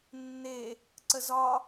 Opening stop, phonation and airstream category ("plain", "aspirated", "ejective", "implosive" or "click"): click